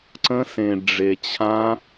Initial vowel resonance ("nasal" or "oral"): nasal